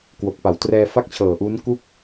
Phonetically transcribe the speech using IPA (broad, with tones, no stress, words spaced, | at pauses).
kwo˨˩k̚pa˩˦w trɛː˧fa˥˩k̚t͡ɕʰɤː˨˩ʔuː˦˥n ku˥˩k̚